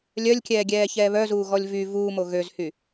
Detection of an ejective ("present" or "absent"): absent